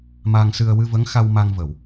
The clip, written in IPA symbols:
m a˧ ŋ s ɨ˧ ə̯ w ɨ˧ v ə˧˥ ŋ x a˧ w m a˧ ŋ v ə˨˩˨ w

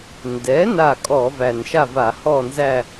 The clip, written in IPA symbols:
n d ɛ˩˥ n a˥˨ kʼ ɔ˧˩˧ v æ˨˩ n ʃ a˥˨ v a˧˩˧ h ɔ˥˨ n z æ˥˨

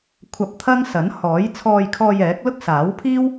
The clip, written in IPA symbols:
kʷʰ ɐ˧ p̚ t̪ʰ ɐ˥ ŋ s ɐ˨˥ n h ɔː˨˥ j t͡sʰ ɔː˧ j kʰ ɔː˧ j ɛː˨˥ k̚ l ʊ˥ k̚ s aː˨˥ w pʰ iː˥ w

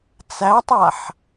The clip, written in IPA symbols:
t͡s æ tˤ a ħ

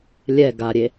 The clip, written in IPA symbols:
lʲ ɛ ɡ a ɾʲ e

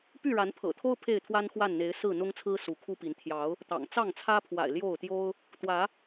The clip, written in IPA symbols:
p y˥˨ ɻ a˨˦ n pʰ ɤ̰˨˩ t̪ʰ o˦ ʊ̯ pʰ e˥˨ ɪ̯ t̪ʰ w a˦ n x w a˥˨ n n̪ e˨˦ ɪ̯ s ɹ̩˥˨ n̪ ʊ˦ ŋ t͡sʰ ɹ̩˦ s u˨˦ kʰ u˦ p i˨˦ n t̪ʰ j ɑ˨˦ ʊ̯ | t̪ ɑ̰˨˩ ŋ t͡s ɑ˥˨ ŋ t͡sʰ ä˦ pʰ w a̰˨˩ ɪ̯ l j o˥˨ ʊ̯ t̪ j o˦ ʊ̯ | t̪ w ä˨˦

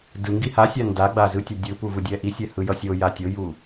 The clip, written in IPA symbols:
d ɯ ŋ ɡ i h a sʲ a n d a ɡ͡b a z ɯ tʲ a dʲ ɯ p u v ɯ dʲ ɛ ʔ i sʲ ɛ h ɯ j ʌ sʲ o j a tʲ o j u

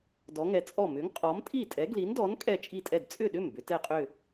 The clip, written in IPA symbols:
d ɔ˨˥ ŋ ɛ˨˥ t͡sʼ ɔ˥˩ m ʏ˨˥ ŋ qʼ ɔ˨˥ m tʼ i˥˩ tʼ ɛ˨˥ ɡ l i˨˥ n d ɔ˨˥ n kʼ ɛ˥˩ t͡ʃʼ i˥˩ tʼ ɛ˥˩ d t͡sʼ ʏ˥˩ ɗ ʏ˥˩ m b ʏ˨˥ t ɛ˥˩ qʼ ʏ˥˩

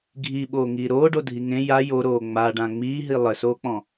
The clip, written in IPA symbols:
ɡʱ i ɓ oː ŋ iː ɾ oː ɖ o dʱ i ŋ ẽ j a j o ɾ oː ŋ͡m a ɖ ã ŋ͡m iː ɦ i lˠ ɘ s oː k͡p ɔ̃

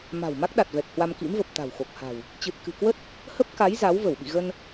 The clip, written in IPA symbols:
m a̤˨˩ w m a˦˥ k̚ ɗ a˨˩ t̚ v ɛ˨˩ k̚ h w a˧ m k ḭ˧˥ m v ə˨˩ p̚ t̪ a̤˨˩ w x o˨˩ k̚ h a̤˨˩ w | t͡ɕ ɨ˨˩ t̚ k ɨ̤˨˩ k w ə˦˥ t̚ | h ə˦˥ p̚ k a˨˦ j z a˨˦ w v ə˧˩ w ɓ ḭ˧˨ ɣ ə˧ n

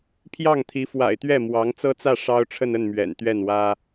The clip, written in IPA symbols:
pʰ j ɑ˥˩ ŋ t̪ʰ i˧˥ f w a̰˨˩ ɪ̯ t̪ ɥ ɛ˥˩ m w ɑ˧˥ ŋ t͡s ɤ˥ t͡s ä˥˩ ʂ ɑ˥ ʊ̯ ʈ͡ʂʰ ə˥˧ n ə˥˩ n m ɥ ɛ̰˨˩ n t̪ ɥ ɛ˥˩ n w ä˥

